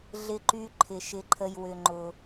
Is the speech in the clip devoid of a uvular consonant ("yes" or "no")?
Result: yes